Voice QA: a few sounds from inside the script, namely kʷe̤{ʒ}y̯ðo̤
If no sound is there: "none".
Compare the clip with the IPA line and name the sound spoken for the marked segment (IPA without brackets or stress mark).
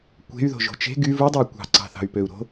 none